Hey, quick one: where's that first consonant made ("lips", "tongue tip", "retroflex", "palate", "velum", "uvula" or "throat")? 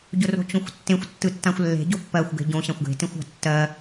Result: palate